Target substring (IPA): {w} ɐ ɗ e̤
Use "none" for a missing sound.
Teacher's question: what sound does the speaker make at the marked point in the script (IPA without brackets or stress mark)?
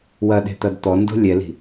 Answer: w